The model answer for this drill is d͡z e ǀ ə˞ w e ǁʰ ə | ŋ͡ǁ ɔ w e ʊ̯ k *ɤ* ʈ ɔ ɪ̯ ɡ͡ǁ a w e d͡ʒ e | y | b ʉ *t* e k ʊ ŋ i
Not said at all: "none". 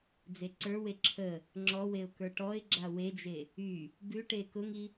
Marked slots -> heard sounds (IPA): ə˞, ʈ

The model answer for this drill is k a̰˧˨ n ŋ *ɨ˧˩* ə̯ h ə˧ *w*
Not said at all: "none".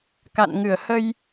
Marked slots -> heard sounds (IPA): ɨ˧˩, j

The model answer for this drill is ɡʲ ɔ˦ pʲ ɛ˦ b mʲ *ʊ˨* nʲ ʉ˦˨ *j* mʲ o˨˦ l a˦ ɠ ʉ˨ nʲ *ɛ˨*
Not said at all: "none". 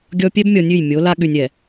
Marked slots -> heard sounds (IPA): ɔ˨, j, ɛ˨

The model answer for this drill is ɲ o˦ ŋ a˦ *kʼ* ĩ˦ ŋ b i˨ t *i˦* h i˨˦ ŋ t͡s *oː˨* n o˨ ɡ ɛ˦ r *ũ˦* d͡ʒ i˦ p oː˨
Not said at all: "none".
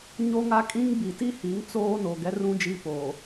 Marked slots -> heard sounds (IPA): kʼ, i˦, oː˦, ũ˦

